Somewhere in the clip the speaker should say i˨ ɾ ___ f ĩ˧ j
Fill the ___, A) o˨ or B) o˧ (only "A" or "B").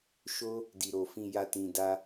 A